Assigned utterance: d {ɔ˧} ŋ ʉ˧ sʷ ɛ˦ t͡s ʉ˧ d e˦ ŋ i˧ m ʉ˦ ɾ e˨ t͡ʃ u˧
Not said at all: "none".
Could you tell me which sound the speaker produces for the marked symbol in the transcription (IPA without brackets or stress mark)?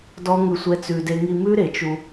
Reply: ɔ˦